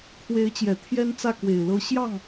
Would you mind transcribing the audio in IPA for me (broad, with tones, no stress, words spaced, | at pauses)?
kʰwe˧˥ɪ̯t͡ɕjɛ˨˩ t̪ʰjɛ˥nt͡sä˥˩ kwe˨˩ɪ̯lɤ˧˥ ɕjɑ˥˩ŋ